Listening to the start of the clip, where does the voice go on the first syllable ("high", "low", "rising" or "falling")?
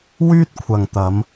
high